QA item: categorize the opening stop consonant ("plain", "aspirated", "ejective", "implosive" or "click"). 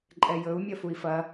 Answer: click